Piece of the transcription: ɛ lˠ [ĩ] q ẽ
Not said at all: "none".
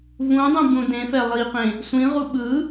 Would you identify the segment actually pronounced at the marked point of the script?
i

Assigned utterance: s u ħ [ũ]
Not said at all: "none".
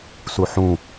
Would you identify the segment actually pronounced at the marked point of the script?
ũ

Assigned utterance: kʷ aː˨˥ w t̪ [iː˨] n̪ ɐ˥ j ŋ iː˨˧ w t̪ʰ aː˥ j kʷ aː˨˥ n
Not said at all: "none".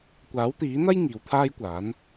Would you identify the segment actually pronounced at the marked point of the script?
iː˨˥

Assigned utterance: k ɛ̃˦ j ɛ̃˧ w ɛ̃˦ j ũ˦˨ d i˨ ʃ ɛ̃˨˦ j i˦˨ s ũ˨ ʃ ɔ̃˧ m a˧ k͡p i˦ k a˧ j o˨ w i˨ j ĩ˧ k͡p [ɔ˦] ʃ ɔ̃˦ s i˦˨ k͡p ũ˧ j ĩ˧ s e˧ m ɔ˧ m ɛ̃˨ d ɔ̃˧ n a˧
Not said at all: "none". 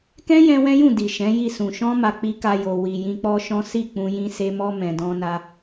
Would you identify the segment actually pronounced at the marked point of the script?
ɔ˦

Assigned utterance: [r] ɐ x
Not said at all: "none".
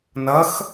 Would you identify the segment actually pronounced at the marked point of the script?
n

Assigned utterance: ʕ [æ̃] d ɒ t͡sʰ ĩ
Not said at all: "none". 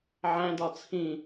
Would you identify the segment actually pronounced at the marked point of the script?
æ̃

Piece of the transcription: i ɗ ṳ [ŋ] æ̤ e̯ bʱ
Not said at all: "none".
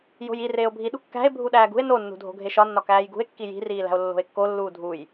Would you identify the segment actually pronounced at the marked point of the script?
kː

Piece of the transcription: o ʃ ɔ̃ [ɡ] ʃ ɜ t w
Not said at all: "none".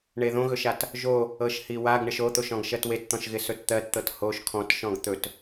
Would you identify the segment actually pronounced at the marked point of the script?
ɡ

